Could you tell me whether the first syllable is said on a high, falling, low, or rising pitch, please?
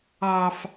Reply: high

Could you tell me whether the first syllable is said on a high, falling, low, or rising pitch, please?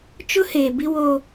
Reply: high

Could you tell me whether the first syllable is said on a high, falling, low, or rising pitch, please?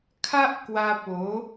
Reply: high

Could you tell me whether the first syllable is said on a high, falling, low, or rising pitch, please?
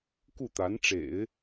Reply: falling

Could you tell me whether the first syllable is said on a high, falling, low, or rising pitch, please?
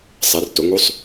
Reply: rising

